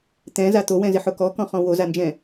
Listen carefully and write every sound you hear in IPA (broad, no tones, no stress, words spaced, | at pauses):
t̪ɛ̃za t̪owɛ̃zɪħʊ kɔkɔ̃χɔ̃ wozand͡ʒɛ̃